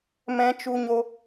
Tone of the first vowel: high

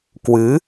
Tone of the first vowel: rising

